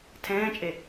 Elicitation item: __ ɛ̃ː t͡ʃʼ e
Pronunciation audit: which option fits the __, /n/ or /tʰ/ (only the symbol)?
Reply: tʰ